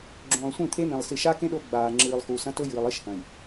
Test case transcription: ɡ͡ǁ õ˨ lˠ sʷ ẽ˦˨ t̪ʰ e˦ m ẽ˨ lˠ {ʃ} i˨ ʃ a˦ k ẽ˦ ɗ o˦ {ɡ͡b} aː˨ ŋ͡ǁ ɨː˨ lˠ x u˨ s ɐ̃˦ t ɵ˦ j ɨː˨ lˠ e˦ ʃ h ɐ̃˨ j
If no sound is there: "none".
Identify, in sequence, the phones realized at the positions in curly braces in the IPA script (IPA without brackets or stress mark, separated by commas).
s, ɡ͡b